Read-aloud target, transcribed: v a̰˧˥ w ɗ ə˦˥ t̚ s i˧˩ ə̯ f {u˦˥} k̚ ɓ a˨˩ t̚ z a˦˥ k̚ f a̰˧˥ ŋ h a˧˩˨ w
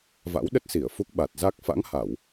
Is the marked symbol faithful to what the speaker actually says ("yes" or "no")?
yes